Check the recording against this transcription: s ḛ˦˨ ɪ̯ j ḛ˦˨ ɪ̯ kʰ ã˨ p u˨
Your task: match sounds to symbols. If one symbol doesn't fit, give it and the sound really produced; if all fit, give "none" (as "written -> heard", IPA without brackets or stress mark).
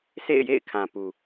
none